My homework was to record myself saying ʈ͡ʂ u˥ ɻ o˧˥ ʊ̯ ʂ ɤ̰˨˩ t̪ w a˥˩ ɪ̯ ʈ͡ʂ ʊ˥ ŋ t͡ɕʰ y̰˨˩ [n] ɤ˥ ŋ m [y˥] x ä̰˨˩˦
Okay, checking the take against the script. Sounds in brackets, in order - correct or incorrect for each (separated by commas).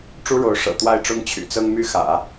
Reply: incorrect, correct